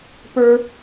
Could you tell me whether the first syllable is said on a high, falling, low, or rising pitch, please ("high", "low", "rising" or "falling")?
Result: high